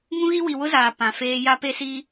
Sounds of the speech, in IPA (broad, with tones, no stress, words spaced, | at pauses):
ŋũ˦ɣi˦wi˨ wʊ˦zaː˨ pã˨feː˦ ja˦pe˦siː˦